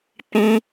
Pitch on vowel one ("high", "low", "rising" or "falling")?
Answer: high